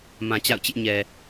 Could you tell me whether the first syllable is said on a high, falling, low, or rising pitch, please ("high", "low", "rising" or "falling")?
low